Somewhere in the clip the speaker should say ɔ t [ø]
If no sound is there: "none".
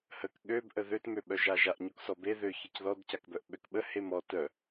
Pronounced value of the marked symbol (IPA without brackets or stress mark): œ